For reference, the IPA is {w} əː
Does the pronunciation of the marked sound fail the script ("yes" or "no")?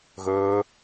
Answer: yes